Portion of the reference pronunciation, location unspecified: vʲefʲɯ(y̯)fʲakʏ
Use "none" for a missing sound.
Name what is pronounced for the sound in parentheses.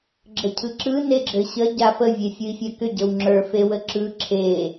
i̯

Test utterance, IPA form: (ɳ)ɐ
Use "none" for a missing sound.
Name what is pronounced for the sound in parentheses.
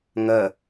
ŋ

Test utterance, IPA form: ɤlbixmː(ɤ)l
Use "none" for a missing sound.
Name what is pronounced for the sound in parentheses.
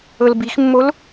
o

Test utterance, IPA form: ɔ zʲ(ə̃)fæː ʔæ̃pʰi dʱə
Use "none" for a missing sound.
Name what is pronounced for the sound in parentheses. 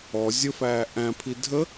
ə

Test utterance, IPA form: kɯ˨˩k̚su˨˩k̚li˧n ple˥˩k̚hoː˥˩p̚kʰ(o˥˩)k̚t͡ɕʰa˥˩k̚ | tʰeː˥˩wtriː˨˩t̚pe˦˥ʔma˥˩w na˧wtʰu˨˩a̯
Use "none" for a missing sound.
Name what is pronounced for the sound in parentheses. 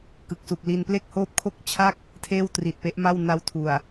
o˥˩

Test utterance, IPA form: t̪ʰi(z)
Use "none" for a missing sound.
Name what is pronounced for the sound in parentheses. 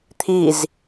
z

